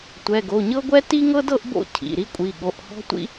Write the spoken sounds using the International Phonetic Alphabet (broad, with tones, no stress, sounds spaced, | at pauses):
tʷ ɛ˩˧˩ ɡ o˩˧˩ ɲ ɤ˥ ɡʷ ɛ˥ t i˥ ŋ ɤ˥ d ɤ˥ ʔ b o̰˥ cʰ ḭ˩˧˩ ɾ i˥ kʷʼ i˩˧˩ ɠ o˩˧˩ ʔ h ɔ̤˥ tʷ ḭ˥